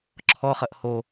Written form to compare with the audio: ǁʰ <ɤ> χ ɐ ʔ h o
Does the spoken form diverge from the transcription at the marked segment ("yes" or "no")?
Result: yes